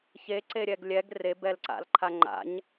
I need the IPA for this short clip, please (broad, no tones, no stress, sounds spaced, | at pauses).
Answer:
ç e ǀ e ɾʲ ɛ ɡ lʲ ɛ ɡ r e b ɛ l ǀ a̰ l ǃʰ a ŋ͡ǃ a̰ ɲ